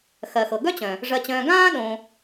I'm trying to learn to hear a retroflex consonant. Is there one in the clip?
yes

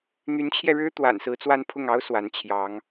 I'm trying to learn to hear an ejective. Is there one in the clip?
no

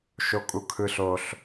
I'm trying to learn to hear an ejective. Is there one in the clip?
yes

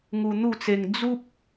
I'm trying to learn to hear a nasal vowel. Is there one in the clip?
no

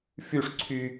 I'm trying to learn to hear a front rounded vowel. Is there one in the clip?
yes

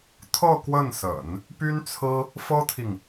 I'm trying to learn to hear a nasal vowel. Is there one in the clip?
no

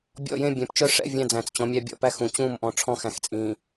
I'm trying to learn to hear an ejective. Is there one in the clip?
yes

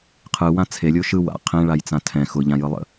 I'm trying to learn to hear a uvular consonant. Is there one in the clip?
yes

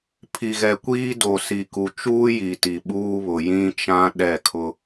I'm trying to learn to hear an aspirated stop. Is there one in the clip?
yes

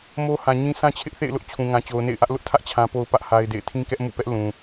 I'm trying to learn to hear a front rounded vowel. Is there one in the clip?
no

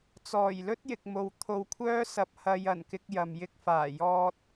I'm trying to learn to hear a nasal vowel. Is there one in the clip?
no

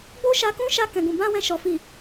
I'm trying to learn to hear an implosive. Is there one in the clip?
no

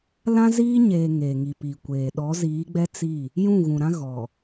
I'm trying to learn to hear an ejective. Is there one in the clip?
no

